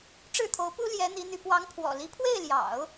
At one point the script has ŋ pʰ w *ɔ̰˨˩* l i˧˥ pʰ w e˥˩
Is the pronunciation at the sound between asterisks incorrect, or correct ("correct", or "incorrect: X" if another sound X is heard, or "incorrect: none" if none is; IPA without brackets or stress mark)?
correct